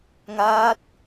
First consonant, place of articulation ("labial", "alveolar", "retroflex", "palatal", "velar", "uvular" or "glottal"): velar